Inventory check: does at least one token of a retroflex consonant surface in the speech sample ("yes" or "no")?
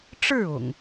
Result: yes